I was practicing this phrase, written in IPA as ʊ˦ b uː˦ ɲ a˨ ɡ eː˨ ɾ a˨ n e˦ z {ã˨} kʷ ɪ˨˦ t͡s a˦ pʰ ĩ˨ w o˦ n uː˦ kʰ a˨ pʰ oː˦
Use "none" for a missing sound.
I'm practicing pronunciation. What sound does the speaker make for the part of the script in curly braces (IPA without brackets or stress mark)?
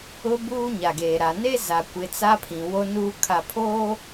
a˨